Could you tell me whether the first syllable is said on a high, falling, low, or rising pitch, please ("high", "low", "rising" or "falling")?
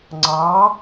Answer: rising